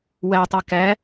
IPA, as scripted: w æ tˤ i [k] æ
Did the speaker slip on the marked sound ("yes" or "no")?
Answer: no